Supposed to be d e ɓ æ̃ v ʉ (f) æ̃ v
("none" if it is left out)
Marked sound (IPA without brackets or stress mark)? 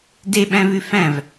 f